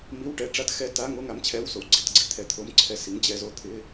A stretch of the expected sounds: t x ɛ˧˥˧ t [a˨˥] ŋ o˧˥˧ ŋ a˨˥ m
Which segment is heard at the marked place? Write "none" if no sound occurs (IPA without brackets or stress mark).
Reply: a˧˥˧